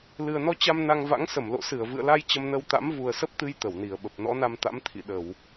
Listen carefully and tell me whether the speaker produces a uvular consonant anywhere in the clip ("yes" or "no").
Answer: no